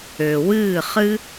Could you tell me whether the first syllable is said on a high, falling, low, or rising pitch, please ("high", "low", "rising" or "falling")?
low